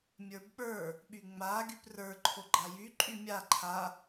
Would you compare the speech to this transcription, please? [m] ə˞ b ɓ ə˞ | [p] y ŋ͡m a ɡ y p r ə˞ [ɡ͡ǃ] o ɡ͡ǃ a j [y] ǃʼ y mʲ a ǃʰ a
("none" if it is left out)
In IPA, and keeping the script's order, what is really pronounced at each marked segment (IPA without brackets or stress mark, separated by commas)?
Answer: mʲ, ɓ, ǃʰ, y